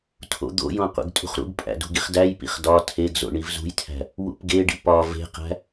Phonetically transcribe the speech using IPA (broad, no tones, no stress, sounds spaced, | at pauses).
tʰ o̰ d̪ o̰ j õ qʷ ḛ ɡ tʼ ṳ χ ɾ ṵ ɡ pʼ æ̰ d ṳ ɡ i χ d æ j p ḭ χ d ɒ tʰ e ɡ z o̰ ɳ i v z ṳ j tʰ æ̤ | w ṵ p ɡ e ɖ ḭ p ɒ v e̤ q æ̤